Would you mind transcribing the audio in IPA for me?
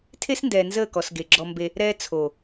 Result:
tʰe˦sndɛː˨nzəː˦˨kɔ˨s ɡe˨ɡ͡ǁɔ˦mbe˦ | ɾɛː˦ t͡sʰo˨

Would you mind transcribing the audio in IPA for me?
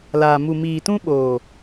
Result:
laː˨ mu˨miː˨tũ˦ɓoː˨

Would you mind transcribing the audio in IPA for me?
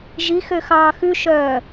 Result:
ʒi xøxɑːxʉʃœː

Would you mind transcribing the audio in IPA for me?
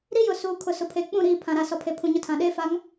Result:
ɾi˦jʊ˨ suː˨kʰʊ˨ sʊ˨pʰeː˨k͡pũ˦˨ ɾiː˦˨ pʰã˨ɾa˨ sɔ˨pʰe˨pʰũ˨ ɲʊ˦tʰã˨ ɗeː˦fa˨˦ŋ

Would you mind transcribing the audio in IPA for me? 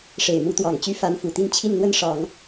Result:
ʂe˨˩ɪ̯mu˧˥t̪wɑ˨˩ŋt͡ɕy˥ fa˧˥nfu˨˩t̪i˥˧n t͡ɕʰi˥˧nn̪wə˥˩nʂɑ˨˩˦ŋ

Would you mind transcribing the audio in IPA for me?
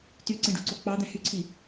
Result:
tyǀẽɖṳǀo k͡pɑd̪æ̃ hyǀʰi

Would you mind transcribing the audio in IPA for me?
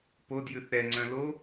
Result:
podjʉθ ɾɛŋ͡ǀœ̃ lo

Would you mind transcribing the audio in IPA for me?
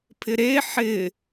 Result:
pʰɪɾe ħɪ

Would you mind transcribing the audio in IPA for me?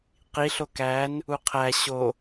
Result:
qi ɬokæn | uqʰæ ɕo

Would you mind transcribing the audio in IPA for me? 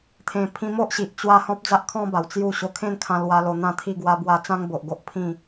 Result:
t̪ʰẽ˧pʰĩ˦ mo˦ʔɕi˨ʔ t͡ɕwa˦ hɔ̃˦p̚d͡za˦ʔkʰɔ̃˦ba˨˩w t͡sju˥˧ ɕo˧kʰẽ˥˧n kʰã˧lwa˧lo˧ n̪ã˥˧t̪ʰi˥˧ɡwa˦bwa˦ t͡sã˦ŋbo˨ʔɡo˦ʔ pʰĩ˥˧

